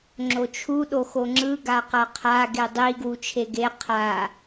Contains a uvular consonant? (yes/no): yes